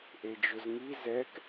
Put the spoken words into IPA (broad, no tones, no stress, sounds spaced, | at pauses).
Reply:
ʔ e d͡ʒ ʊ z ŋ i z ɛ k